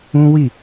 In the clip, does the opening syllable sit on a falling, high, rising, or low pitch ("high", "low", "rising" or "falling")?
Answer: high